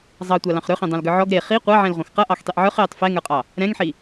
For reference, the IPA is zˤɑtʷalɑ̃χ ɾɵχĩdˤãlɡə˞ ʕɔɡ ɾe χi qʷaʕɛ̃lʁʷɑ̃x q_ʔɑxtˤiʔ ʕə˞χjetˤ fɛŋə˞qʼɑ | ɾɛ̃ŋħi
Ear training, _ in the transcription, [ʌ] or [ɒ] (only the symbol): ʌ